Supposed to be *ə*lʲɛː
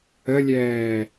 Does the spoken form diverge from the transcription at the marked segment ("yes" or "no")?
no